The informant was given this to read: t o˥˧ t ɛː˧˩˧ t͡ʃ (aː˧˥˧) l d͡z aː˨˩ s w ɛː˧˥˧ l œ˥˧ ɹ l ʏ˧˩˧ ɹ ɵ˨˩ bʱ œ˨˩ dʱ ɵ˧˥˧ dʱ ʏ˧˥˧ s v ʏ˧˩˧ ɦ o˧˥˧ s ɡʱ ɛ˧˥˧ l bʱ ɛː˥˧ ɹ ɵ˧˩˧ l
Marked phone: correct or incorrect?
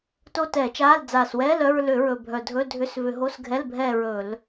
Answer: correct